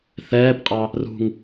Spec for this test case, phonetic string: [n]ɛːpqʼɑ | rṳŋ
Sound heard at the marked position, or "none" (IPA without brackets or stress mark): θ